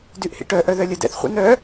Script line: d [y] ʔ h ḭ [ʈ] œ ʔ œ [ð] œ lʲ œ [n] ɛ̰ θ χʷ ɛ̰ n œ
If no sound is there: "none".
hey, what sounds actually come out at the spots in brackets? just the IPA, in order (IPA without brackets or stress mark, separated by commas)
y, ʈ, ð, d